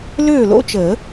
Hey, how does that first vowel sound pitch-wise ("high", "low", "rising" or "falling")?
falling